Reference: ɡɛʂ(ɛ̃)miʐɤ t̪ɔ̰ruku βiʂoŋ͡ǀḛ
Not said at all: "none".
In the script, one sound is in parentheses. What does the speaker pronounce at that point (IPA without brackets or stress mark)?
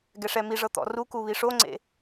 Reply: ɛ